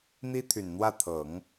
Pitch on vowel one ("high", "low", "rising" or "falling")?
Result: high